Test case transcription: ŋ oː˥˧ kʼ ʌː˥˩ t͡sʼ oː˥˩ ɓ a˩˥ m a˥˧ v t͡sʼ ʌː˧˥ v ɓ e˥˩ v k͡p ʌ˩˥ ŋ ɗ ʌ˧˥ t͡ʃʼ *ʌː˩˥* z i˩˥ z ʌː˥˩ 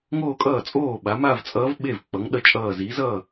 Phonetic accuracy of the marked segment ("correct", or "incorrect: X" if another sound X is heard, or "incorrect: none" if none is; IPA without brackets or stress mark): incorrect: ʌː˧˩